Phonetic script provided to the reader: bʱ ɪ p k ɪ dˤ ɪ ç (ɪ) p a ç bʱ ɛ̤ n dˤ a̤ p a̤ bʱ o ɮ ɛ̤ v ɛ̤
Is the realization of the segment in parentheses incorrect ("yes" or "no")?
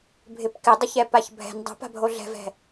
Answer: yes